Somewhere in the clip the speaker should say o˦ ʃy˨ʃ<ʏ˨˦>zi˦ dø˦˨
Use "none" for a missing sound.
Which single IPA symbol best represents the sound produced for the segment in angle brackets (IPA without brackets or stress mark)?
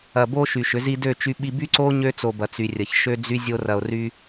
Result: ʏ˨˦